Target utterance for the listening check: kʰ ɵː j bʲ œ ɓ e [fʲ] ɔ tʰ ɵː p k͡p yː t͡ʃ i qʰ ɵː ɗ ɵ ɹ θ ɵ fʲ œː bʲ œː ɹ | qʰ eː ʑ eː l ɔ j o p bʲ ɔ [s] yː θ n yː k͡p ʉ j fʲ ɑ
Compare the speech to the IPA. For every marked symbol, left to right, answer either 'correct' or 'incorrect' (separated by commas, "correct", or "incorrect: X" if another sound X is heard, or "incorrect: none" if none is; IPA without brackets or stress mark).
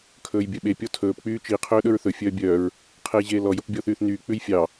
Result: incorrect: pʲ, incorrect: θ